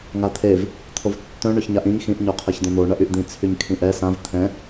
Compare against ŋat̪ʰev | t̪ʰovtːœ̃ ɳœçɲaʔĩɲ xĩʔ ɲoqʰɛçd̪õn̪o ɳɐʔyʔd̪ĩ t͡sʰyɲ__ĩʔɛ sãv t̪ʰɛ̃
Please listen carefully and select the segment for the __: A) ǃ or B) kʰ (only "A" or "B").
B